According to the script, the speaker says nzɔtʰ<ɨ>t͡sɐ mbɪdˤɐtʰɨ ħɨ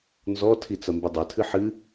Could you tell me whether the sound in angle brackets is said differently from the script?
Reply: yes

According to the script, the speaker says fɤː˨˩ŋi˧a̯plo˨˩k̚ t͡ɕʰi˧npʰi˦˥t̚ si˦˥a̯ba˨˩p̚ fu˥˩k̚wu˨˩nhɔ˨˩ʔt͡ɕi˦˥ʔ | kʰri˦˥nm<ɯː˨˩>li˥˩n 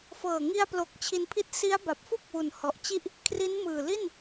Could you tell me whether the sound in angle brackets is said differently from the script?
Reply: no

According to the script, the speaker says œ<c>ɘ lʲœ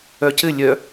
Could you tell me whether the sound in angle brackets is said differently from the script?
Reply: no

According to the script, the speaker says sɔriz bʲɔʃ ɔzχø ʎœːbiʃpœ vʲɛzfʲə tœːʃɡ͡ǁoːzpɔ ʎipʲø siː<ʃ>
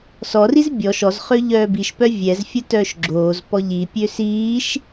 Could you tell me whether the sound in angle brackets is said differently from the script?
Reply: no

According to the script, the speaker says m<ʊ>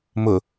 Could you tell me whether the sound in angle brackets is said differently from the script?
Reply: no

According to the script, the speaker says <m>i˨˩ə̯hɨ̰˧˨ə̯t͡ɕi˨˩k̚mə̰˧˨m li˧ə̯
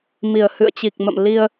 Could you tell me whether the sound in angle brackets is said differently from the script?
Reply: no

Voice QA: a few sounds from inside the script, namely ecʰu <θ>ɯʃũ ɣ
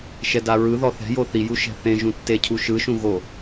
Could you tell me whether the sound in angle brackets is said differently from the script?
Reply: yes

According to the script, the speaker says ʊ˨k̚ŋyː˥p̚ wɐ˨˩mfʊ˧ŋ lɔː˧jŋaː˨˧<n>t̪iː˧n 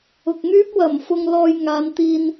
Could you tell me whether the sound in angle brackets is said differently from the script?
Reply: no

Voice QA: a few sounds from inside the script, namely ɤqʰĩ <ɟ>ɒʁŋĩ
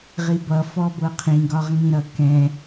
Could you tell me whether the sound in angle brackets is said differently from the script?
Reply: yes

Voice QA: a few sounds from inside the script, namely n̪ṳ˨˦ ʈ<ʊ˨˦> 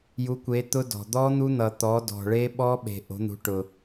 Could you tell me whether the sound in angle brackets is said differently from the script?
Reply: yes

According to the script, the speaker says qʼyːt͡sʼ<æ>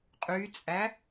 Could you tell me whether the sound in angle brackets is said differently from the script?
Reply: no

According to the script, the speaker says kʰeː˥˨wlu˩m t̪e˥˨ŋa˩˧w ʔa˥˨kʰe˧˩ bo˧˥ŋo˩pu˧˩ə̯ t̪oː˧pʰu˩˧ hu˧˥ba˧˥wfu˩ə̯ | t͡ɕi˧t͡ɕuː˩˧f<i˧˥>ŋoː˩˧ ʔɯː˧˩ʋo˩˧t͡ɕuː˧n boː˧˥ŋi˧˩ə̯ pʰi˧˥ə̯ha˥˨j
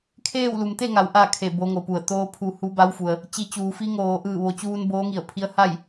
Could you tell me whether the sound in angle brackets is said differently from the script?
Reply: no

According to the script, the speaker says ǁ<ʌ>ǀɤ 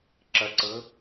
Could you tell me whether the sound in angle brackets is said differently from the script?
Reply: no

